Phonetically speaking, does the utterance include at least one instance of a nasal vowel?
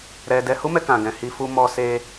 yes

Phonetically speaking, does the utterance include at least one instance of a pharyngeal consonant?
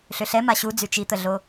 no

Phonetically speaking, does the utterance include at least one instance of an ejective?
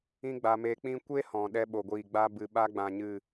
no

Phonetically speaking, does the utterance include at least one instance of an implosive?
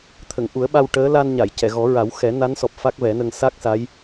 yes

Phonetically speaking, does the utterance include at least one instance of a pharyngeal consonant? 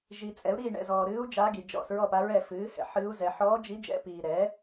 yes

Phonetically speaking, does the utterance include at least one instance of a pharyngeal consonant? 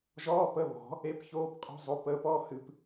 no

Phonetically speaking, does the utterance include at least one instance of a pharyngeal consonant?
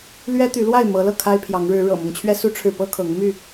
no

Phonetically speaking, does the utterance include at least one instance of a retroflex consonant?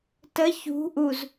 no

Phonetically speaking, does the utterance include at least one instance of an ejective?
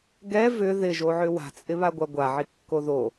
yes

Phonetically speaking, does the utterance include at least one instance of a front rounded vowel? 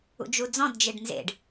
no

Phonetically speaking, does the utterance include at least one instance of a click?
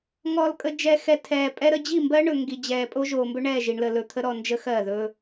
no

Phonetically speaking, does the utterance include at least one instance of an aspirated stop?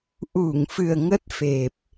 no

